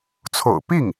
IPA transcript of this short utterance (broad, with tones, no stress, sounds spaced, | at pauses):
t͡sʰ o̰˨˩ ʊ̯ p i˥˩ ŋ